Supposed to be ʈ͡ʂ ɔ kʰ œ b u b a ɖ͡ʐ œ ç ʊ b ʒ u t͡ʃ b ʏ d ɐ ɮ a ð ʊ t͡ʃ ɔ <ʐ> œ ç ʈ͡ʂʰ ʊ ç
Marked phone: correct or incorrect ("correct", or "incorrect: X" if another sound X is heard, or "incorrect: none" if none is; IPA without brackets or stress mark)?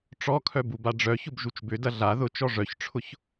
correct